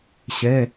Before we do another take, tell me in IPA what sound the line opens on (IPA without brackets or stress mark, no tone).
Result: ɕ